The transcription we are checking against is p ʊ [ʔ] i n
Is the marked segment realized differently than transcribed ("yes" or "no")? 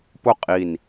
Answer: yes